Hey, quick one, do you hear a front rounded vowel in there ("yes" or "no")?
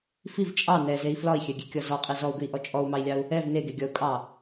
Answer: no